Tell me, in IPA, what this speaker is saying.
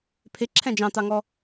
pʰ ɪ ǁʰ ɛ̃ d͡ʒ ɑ̃ t ɑ ŋ ɔ

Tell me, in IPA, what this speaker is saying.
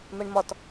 m ɛ ɳ m ɒ t

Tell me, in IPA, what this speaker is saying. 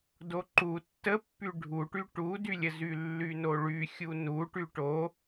d o ǃ u tː ə pː y ɖʱ u ʈ y ʈ u d y lʲ ə z y lː y n o ɭ y xʲ u n u ʈ y ʈ o

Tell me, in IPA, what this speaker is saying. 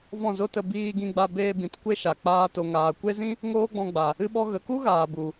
v ɔ̃˦˨ z o˦ t ə˧ b iː˧ ɡ ĩ˧ ɡ͡b a˧ b eː˧ b ĩ˨ t kʷ e˧ ʃ a˨ k͡p aː˧ t o˨ ŋ aː˨ kʷ e˦ z ĩ˦ | ŋ oː˦ ɡ͡b ɔ̃˧ ɡ͡b a˨ | ɨ˧ ɓ ɔ˧ ɣ ə˨ k u˦ ɣ aː˨ b u˨

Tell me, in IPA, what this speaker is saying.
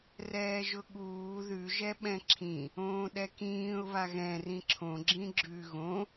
r ɛː ʒ ʊ ɠ uː ð ʉ ʒ ɛ ɓ ɛ̃ ǁʰ ĩ | õː ɗ ɛ k ĩː ʊ̯ β a ɣ ɛ̃ r ĩ ǁʰ õ ɡ͡ǁ ĩ ɡ͡ǁ ʉ ɣ õ

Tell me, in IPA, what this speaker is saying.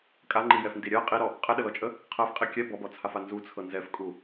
kʼ a ŋ͡ǃ i j ɛ f n d i ɾʲ ɜ qʼ i ɾ ɔ | qʼ ɛ ɗ ə l ɔ t͡ʃʼ ə | qʰ ɜ f qʼ i kʲ ɛ b ɔ b ɔ t͡sʰ a f a n z u t͡sʰ ɤ n z ɛ f kʼ u

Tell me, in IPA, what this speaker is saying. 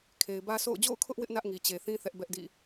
kʰ e˨ ɪ̯ b ä˦ sʰ o̰˦˨ ʊ̯ d͡ʑ o̰˦˨ ʊ̯ kʰ ʊ˦ ʔ w ɪ˦ ʔ n ä˦ ʔ ŋ i˨ t͡ɕ e˨ θ ĩ˦ θ ɛ˦ ʔ b ɛ˦ ʔ d ḭ˦˨

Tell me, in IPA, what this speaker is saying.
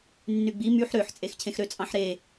nː y ɡ͡b i m y ħ ɾ ø ħ t͡sʼ e x cʰ ẽ x ɾ ø t͡sʼ ɑ̃ ħ ɾ e

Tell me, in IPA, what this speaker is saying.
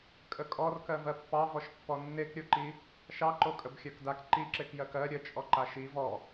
kʼ ə kʼ ɔ r k ɜ v ɜ pː ɑ v ɔ ʃ pː ɔ nː e k ɾʲ o ǃ i | ʃ ɑ ǃ o kʼ ə b xʲ ɜ k d a k ǃ i ǁ e k j ɜ k ɜ ɾʲ ə t͡ʃʼ ɔ ǃ a ʃ i v ɔ

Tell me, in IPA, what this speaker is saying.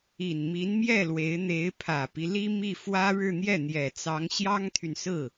i˨˩ n m i˧˥ n m j ɛ˥˩ l w e˧˥ ɪ̯ n̪ e˧˥ ɪ̯ pʰ ä˨˩ p i˦ l i˥ m i˥˩ f w ä˥ ɻ ɻ̩˥˧ n̪ j ɛ˥˩ n̪ j ɛ˨˩ t͡s ɑ˧˥ ŋ ɕ j ɑ˥ ŋ t̪ʰ y˨ n s ɹ̩˥˩

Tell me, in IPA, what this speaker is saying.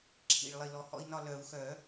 ǁʰ ḭ˨˩ ɭ lˠ i˨˩ l ɔ˨˦ h ɔ̰˦ i̯ n ɒ˦˨ l œ˨˩˦ u̯ x œ˨˩˦

